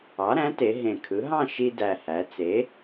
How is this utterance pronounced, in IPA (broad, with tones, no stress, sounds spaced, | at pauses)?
ɑ˩˥ ɾ æ̃˩˥ t e˩˧ ɦ ẽ˨˩ kʰ ɯ˩˥ ɦ ɑ̃˥˧ ʃ i˧ d æ˨˩ h æ˩˧ t͡s e˩˥